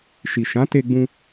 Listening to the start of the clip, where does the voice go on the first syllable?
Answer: low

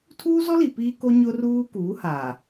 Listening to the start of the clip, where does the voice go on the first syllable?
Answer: high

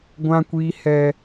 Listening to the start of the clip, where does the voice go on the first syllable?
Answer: high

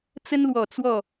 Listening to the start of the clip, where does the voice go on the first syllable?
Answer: high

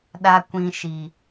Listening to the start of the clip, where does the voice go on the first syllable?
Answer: high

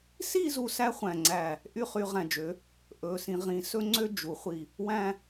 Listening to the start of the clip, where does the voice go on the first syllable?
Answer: falling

